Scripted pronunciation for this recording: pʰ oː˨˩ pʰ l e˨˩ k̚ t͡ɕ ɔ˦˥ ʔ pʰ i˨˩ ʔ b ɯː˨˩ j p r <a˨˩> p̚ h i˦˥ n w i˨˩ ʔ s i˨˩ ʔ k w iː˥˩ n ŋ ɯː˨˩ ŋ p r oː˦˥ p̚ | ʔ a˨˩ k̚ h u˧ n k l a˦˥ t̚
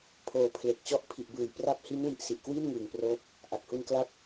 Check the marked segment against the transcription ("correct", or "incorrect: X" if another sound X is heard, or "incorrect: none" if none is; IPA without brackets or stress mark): incorrect: a˦˥